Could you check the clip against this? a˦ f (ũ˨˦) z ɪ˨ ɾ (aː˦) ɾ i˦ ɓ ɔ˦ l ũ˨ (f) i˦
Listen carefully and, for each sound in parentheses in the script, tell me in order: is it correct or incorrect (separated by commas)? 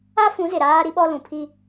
correct, correct, incorrect